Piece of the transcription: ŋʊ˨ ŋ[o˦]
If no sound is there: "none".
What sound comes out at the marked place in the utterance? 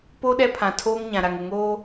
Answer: oː˦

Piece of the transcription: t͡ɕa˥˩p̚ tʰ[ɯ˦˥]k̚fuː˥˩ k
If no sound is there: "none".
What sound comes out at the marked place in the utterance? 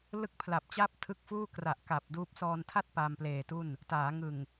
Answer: ɯ˦˥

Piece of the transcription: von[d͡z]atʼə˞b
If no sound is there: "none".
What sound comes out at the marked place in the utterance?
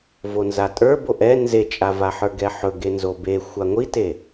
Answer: z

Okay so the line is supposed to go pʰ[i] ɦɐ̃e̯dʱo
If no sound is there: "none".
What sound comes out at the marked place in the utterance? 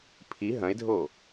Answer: i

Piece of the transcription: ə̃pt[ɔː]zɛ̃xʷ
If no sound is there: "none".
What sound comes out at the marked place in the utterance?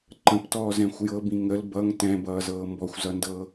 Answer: ɔː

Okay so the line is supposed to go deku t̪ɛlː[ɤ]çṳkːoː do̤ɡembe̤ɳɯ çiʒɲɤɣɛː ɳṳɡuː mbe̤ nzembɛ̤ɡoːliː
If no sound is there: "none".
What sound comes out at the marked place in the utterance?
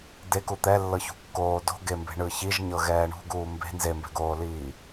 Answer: ɤ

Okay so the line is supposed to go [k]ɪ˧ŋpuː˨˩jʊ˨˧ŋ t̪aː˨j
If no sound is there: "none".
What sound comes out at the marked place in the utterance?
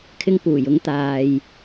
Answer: kʰ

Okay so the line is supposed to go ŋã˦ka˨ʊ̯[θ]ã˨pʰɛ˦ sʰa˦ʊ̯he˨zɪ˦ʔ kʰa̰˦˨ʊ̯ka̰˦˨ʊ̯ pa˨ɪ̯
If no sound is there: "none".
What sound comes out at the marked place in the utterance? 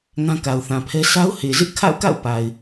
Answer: θ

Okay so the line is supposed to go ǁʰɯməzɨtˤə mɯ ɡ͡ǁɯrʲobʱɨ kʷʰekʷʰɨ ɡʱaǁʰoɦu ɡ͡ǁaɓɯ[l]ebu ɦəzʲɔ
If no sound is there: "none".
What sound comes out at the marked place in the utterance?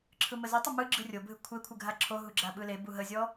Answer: l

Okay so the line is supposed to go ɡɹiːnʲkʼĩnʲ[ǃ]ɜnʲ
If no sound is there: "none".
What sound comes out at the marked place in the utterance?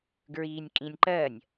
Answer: ǃ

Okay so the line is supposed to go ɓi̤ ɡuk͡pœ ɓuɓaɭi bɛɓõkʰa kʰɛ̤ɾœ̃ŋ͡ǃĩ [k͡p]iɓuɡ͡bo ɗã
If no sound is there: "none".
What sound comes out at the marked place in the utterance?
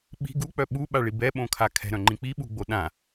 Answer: k͡p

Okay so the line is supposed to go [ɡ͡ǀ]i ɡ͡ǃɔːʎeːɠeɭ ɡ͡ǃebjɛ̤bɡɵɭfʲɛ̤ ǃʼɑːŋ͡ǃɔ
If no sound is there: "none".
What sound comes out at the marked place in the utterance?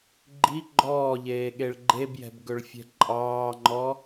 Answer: ɡ͡ǃ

